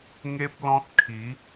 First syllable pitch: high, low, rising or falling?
high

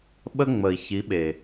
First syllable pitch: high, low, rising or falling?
high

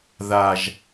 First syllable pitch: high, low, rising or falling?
low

